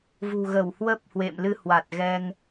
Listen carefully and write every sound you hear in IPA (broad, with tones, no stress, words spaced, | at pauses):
vṳ˨˩ ɣə˧˩w hwə˦˥p̚ hwḛ˧˨mlɨ˧hwa˨˩t̚ ɣɛ˧ŋ